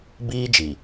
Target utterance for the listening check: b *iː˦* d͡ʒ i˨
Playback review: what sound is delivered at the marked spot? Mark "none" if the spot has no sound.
iː˦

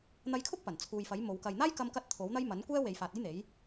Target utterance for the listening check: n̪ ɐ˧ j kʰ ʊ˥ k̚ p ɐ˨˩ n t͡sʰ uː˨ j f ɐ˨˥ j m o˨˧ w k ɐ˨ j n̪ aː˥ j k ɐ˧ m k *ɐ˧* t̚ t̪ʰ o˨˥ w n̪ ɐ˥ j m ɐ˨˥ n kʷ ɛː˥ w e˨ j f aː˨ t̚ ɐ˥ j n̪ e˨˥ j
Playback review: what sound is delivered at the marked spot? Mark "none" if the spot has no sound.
ɐ˧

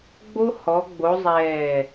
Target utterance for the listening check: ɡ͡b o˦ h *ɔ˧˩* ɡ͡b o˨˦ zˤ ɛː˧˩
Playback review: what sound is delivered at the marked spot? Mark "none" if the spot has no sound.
ɔ˨˦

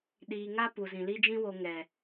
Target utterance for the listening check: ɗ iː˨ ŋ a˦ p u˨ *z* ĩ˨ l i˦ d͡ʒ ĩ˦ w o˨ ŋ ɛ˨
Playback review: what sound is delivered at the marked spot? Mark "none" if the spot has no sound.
z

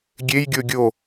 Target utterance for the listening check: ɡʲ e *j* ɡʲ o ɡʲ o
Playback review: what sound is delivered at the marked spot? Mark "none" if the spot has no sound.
j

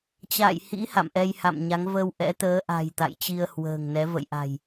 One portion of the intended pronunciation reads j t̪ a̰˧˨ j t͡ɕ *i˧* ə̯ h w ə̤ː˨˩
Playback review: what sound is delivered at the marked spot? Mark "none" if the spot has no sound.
i˧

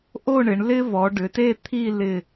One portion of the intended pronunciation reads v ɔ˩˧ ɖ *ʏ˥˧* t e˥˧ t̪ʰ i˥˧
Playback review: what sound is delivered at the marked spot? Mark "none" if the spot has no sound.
ʏ˩˧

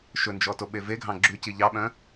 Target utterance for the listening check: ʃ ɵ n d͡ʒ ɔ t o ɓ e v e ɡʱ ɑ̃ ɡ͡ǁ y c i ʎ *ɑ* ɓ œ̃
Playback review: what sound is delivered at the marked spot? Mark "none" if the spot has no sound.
ɑ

